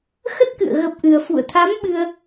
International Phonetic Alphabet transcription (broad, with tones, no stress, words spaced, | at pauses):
xə˦˥t̚kɨ̰˧˨ə̯ ɣə˦˥p̚ʔɨ˧ə̯ fṵ˧˨ə̯t̪ʰa˨˦m ɓɨ˧ə̯